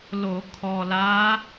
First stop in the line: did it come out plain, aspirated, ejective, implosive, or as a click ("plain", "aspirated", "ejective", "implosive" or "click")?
aspirated